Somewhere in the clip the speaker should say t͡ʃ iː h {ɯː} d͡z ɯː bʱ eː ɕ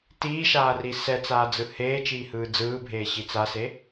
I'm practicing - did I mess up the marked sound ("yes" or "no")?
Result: no